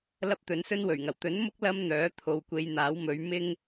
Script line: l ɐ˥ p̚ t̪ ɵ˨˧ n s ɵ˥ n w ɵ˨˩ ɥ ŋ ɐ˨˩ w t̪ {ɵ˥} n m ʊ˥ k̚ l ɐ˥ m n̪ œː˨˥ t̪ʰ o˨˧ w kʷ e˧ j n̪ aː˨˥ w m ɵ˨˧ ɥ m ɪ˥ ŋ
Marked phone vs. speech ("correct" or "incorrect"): incorrect